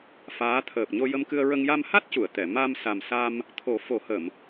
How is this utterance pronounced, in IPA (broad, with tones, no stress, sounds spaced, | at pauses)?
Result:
f aː˧˥ t̪ʰ əː˨˩ p̚ ɲ o˧ j ə˧ m k ɨ˧ ə̯ ɹ ə˧ ŋ j a˧ m h a˦˥ t̚ c u˨˩˨ ə̯ t̪ ɛ˨˩˨ m a˧ m s a˨˩ m s a˧ m | t̪ʰ o˨˩˦ f o˨˩˦ h ə˨˩˨ m